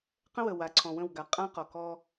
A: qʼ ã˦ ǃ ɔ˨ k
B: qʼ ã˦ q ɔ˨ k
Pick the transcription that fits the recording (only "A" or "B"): B